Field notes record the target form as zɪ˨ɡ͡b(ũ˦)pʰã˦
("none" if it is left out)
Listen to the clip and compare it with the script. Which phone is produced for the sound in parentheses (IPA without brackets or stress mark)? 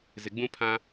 ũ˦